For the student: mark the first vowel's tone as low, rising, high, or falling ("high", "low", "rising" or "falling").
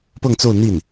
falling